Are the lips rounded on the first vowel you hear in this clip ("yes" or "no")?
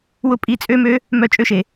yes